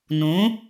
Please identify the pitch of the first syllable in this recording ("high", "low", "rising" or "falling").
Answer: rising